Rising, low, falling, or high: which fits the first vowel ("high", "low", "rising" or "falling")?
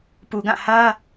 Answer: low